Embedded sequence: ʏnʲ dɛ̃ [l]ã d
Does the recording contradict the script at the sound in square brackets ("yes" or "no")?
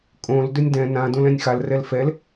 yes